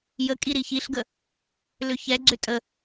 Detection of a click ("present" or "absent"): present